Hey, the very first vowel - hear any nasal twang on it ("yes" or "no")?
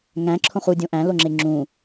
yes